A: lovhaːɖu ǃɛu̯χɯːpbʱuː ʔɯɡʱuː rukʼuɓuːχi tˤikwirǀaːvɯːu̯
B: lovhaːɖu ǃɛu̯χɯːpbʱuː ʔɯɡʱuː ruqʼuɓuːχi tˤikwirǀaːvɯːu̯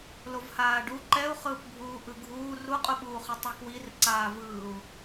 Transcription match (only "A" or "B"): B